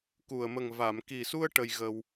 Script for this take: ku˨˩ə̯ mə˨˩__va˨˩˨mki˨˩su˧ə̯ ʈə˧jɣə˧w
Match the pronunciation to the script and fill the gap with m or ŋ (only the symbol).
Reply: ŋ